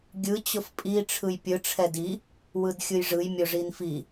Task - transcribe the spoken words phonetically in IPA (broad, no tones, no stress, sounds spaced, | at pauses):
ɡʲ ɯ t͡ɕ ʊ f pʼ i ʈ͡ʂʰ ɯ j pʲ ɯ ʈ͡ʂʰ ɛ d i | w ɯ d xʲ ɯ j ʐ ɯ j mʲ ʊ ʐ i n f i